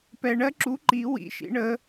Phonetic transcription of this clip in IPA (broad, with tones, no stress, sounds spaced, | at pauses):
p ɛ˧ ɳ ɜ˥ ǁ u˧˥ ǃ i˧˥ w ḭ˧˥ ʃ ḭ˧˥ ɳ ə˧˥